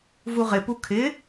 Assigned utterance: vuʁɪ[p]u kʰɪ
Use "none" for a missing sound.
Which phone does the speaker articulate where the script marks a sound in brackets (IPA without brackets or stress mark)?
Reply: p